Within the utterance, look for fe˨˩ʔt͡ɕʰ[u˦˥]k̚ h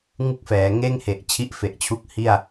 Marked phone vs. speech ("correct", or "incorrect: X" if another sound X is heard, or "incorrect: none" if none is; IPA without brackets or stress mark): correct